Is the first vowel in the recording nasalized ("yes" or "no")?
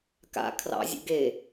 no